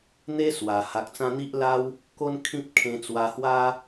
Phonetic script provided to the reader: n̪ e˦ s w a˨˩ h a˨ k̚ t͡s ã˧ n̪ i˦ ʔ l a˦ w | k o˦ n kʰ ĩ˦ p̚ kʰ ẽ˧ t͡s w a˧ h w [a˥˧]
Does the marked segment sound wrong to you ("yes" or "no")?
yes